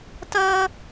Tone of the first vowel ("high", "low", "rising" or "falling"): high